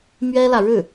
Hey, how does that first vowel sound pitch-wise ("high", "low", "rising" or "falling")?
high